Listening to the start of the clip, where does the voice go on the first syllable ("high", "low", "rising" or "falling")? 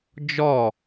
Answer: falling